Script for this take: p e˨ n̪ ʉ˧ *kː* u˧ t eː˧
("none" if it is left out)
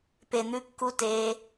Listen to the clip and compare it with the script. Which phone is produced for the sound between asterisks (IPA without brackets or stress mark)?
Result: kː